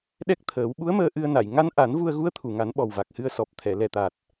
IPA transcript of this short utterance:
ɗɛ˦˥k̚t̪ʰəː˨˩˦w ɓu˧˥ə̯məː˧ ʔɨ˧ə̯na˨˩˨j ŋa˧˥nʔa˨˩˦n vu˧ə̯ɣu˧˥ə̯t̪ʰu˨˩˨ŋa˨˩˦n ɓɔ˨˩wva˨˩k̚hɨ˧ə̯ sɔ˨˩p̚t̪ʰɛ˨˩˨lɛ˨˩t̪a˨˩t̚

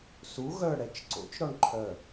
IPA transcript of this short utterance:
su ɣœɽɛt͡ʃ ǀo̰t͡ʃɾɔɳ ǃʰœ

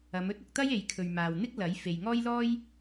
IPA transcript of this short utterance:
ɐ˨˧mɵ˥t̚ ʊ˨k̚t̪ɐ˥j e˨˧jkʰɵ˨ɥmaː˨w n̪ɪ˥k̚ lɐ˨˥j fe˨jŋɔː˥jlɔː˥j

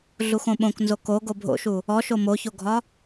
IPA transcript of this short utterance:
ɮuxõɓõk nzoko ɡobʱo̰ʃu | ɔ ʃomoçoɡʱɒ

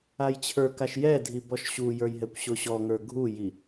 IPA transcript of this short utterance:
ajt͡ɕʰə˞kaʃ jɛdʱi bɔʃɕujə˞j ɦɛkʷɕoɕɔŋə˞ ɡʱuji

